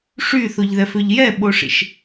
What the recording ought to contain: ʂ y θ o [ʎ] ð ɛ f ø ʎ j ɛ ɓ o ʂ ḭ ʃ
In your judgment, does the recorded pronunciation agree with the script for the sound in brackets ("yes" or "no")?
yes